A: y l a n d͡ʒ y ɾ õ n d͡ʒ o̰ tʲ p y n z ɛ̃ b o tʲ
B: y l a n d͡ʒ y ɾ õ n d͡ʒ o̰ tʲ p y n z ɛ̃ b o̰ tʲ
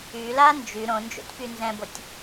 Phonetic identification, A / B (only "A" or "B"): A